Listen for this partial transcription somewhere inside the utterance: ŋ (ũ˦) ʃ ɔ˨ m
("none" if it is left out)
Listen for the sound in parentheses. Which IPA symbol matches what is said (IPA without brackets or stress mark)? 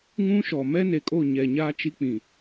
ũ˦